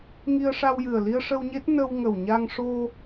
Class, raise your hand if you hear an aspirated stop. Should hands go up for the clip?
no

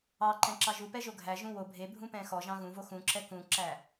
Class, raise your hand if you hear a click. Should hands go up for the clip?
yes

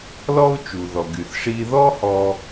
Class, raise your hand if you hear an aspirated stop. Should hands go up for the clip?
no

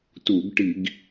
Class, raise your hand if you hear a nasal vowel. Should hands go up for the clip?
no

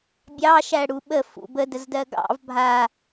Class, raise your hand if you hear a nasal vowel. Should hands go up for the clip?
no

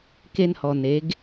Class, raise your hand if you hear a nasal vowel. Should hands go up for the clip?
no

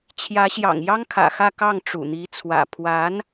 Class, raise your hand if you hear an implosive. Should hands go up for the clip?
no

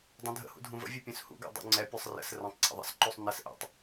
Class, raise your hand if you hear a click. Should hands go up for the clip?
yes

